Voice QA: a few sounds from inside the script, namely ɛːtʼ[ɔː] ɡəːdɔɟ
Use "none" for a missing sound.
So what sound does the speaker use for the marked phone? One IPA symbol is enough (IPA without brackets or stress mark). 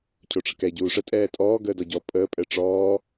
ɔː